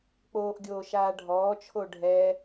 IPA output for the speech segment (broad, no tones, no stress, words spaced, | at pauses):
k͡poːʔɡʲoː ʃaːɖʱɔːt͡ʃʰo ɖʱɛ